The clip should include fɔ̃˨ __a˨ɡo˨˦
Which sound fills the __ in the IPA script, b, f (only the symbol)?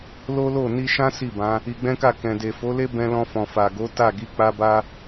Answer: f